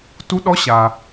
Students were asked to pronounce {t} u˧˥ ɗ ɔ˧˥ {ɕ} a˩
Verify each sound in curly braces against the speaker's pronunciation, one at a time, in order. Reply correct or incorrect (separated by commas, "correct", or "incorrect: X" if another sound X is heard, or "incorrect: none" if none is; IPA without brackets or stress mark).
correct, correct